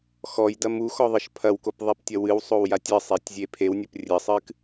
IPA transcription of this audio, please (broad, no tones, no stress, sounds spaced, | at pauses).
x ɔ j d ɐ m u x ɔ ðˤ ɘ ʃ pʰ ɐ w k o p ðˤ i p tʲ ɐ w ɨ w sˤ o w j a tʲ ɨ sˤ e tʲ zʲ e pʰ e w nʲ ɘ p rʲ ɘ sˤ ɨ k